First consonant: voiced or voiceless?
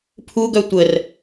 voiceless